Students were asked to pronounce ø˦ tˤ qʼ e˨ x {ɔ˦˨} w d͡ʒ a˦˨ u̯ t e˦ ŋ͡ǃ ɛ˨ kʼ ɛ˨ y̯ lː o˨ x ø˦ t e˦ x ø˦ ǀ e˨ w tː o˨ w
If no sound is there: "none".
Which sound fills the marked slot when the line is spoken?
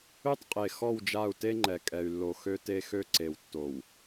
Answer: ɔ˦˨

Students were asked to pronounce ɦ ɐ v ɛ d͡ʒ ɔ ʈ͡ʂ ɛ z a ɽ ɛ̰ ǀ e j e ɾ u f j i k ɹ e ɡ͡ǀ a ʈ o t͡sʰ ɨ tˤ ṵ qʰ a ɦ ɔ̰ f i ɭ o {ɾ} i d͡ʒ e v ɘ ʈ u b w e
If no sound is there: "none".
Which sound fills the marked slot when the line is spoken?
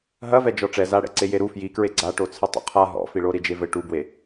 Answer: ɾ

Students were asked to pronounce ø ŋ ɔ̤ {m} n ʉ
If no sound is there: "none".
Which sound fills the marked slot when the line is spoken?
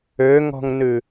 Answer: ŋ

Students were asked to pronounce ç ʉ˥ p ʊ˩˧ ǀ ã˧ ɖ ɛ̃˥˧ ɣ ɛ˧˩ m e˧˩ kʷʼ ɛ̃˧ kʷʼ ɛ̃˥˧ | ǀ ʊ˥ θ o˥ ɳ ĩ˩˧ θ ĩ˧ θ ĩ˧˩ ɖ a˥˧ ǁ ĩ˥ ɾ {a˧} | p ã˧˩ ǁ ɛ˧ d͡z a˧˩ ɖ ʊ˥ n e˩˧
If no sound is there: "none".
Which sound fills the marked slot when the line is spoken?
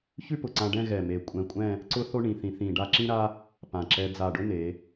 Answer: a˥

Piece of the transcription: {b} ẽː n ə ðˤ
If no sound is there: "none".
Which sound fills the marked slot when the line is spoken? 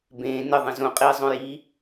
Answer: b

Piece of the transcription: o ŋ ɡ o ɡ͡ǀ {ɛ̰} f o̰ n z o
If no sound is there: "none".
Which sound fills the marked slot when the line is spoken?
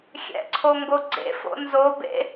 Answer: ḛ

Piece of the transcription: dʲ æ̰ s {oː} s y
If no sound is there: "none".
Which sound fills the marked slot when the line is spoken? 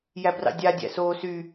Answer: oː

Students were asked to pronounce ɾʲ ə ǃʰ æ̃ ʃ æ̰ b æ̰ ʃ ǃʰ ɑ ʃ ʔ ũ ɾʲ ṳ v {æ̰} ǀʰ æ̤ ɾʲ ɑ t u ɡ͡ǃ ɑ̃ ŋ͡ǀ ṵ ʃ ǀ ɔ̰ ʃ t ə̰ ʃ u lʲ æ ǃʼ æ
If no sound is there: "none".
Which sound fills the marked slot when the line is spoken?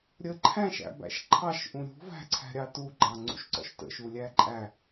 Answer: æ̤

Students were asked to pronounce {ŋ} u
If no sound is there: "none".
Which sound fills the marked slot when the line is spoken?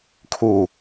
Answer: kʰ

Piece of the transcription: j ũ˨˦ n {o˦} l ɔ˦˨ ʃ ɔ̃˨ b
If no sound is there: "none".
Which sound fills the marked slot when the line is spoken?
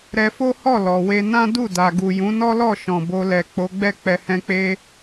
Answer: ɔ˦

